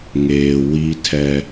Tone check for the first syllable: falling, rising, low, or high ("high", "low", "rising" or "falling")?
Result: low